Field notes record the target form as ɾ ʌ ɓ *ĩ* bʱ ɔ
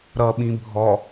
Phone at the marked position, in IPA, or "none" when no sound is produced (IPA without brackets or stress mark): ĩ